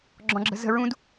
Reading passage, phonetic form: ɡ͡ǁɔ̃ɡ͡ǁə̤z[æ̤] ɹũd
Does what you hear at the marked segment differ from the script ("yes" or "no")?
yes